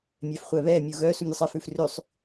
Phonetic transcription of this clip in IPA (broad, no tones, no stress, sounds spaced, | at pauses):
mʲ ɛ f χʷ ɛ β ɛ mʲ u ɣ œ s u mʲ u sˤ ɛ f ʉ f r ʉ sˤ